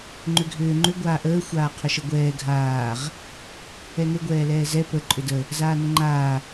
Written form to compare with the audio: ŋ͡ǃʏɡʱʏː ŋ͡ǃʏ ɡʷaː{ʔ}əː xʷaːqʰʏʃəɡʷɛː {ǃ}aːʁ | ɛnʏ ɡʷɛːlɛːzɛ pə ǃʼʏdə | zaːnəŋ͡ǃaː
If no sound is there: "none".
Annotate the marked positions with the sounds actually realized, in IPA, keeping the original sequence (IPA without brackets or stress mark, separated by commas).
ʔ, ɡʱ